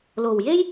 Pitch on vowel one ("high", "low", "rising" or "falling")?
low